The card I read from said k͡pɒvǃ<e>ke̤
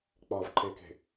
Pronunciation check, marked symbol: correct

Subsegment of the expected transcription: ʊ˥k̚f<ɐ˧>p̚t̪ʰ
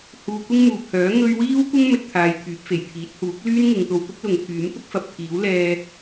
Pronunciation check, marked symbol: incorrect: ɐ˨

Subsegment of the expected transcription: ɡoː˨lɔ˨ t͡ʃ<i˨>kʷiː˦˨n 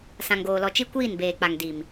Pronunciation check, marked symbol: incorrect: i˦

